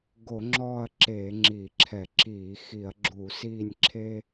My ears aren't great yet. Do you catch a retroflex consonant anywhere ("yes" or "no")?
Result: no